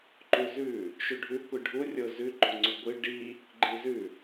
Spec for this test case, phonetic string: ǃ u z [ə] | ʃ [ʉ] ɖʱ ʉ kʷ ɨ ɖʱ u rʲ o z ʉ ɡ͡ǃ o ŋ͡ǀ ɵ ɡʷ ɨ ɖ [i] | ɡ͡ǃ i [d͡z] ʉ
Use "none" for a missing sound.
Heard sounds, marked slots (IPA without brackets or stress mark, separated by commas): ʉ, ʉ, i, z